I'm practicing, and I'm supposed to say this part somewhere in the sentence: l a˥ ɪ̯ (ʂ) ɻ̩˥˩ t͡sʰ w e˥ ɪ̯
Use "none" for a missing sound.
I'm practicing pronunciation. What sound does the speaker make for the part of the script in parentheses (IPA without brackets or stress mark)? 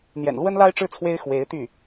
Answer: ʈ͡ʂ